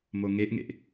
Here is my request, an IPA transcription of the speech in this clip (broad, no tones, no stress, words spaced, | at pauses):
moŋeʔŋḛʔ